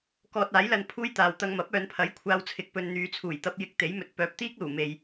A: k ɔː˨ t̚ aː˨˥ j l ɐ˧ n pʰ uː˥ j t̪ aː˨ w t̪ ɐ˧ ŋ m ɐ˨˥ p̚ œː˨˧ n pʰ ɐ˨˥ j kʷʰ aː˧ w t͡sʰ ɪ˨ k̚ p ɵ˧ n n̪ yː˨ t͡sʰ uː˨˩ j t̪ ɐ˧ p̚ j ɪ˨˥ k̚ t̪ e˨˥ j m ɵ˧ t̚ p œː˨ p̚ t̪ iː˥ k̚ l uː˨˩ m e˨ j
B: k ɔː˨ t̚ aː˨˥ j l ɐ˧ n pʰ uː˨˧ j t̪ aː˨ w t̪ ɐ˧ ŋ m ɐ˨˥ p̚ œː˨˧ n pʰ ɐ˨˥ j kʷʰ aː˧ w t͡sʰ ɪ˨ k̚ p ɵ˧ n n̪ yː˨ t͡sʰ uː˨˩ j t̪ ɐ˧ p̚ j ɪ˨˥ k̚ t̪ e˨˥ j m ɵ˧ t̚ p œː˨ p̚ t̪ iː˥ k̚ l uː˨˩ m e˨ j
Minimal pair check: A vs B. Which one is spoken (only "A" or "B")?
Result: A